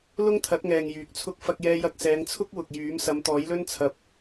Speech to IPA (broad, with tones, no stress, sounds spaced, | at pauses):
l ʊ˥ ŋ t̪ʰ ɐ˨˥ t̚ ŋ ɛː˨ ŋ j yː˨ k̚ t͡sʰ ʊ˥ k̚ f ɐ˧ k̚ j ɛː˧ j ɐ˧ k̚ s ɛː˨˧ ŋ t͡sʰ ʊ˥ k̚ w ʊ˨ k̚ j yː˨˥ m s ɐ˨˧ m t̪ ɔː˨˥ j l ɵ˥ n t͡sʰ ɐ˧ p̚